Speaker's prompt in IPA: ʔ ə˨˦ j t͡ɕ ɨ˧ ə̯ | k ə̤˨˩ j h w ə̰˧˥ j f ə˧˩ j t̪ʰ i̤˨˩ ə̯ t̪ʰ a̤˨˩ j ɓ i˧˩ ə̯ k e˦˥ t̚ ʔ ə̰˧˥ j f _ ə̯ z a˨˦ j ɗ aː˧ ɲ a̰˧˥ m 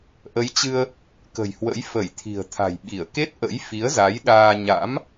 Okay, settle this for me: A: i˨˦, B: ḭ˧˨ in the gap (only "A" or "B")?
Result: A